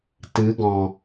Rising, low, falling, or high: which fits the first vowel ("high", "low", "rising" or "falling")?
rising